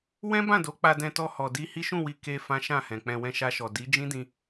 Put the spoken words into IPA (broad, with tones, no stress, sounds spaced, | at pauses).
w ɛ̃˦ b ã˦˨ d o˨˦ k͡p a˧ d ɛ̃˧ t ɔ˧ h ɔ˨ d i˧ h i˦ ʃ ũ˦˨ w i˧ k e˧ f ã˦ ʃ ã˦˨ h ɛ̃˨ k͡p ɛ̃˧ w ɛ̃˧ ʃ a˧ ʃ ɔ˨ d i˨˦ d͡ʒ ĩ˦ d ĩ˧